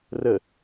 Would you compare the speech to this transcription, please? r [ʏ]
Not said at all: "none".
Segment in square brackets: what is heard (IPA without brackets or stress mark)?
ə